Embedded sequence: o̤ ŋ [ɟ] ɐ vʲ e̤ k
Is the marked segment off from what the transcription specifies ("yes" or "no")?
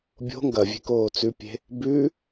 yes